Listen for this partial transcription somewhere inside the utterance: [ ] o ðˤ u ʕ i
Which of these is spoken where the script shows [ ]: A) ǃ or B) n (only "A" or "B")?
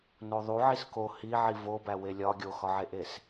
B